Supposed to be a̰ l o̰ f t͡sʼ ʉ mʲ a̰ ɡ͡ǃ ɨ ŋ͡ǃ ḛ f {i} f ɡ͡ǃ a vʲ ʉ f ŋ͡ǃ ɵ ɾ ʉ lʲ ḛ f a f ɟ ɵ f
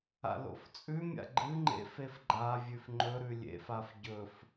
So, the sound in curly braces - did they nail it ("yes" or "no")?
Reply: no